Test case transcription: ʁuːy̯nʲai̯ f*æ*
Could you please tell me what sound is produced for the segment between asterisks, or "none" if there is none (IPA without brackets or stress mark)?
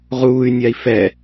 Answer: ɛ